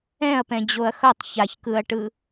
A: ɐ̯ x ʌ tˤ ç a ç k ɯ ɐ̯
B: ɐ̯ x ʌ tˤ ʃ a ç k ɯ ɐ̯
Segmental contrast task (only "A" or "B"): A